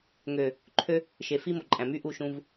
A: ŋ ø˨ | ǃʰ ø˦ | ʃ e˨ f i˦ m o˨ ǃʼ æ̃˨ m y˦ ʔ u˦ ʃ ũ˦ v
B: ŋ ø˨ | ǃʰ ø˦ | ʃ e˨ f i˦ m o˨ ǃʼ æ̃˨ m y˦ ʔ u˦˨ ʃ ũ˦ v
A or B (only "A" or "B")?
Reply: B